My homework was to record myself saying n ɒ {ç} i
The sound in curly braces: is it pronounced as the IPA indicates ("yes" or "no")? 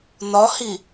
no